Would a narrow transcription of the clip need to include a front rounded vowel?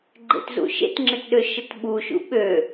yes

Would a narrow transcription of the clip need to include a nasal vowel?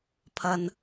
no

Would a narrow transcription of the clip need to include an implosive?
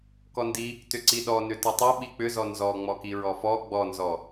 yes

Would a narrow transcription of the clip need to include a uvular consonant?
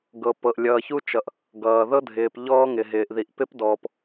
no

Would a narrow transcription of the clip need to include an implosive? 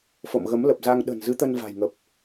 yes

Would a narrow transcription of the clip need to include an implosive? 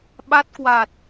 yes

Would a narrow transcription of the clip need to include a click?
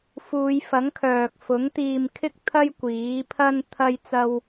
no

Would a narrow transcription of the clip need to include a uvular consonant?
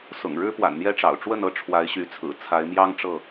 no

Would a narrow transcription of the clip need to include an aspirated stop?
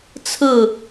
yes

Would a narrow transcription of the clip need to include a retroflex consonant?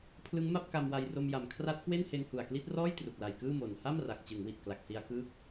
no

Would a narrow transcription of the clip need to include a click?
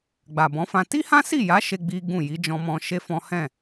no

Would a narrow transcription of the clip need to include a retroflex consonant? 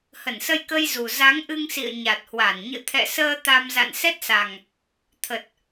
no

